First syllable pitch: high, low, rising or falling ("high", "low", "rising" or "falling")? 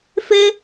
high